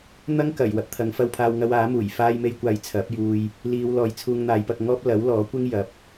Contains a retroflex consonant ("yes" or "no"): no